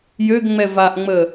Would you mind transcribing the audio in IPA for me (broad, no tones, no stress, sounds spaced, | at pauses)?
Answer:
j ø ɡ ŋ͡m ɛ v a ʔ ŋ͡m ə